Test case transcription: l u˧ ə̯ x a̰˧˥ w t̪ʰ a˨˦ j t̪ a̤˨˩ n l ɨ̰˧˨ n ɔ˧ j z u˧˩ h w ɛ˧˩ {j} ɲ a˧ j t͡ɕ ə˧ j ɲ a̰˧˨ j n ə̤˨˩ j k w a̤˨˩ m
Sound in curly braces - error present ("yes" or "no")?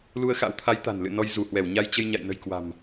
yes